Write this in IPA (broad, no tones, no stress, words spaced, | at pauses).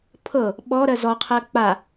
pʰɤ | ɓɔɾɜ zɔqʰɜ k͡pa